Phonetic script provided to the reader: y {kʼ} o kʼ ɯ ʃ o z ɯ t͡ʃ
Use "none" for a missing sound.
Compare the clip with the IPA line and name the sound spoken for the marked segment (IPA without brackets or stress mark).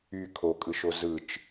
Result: kʰ